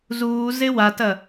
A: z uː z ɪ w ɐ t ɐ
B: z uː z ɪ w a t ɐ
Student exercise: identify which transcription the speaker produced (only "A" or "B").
B